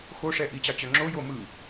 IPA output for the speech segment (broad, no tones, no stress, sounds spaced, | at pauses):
x o ʂ ɛ ʔ i t͡ɕ ɑ t͡ɕ œ ŋ͡ǁ o j o m ɯ